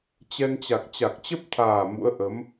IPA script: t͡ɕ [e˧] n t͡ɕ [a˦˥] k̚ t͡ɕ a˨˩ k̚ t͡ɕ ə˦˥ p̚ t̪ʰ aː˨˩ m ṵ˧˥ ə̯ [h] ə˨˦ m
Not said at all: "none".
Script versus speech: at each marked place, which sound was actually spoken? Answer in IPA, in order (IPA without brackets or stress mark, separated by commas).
ɛ˧, a˨˩, ʔ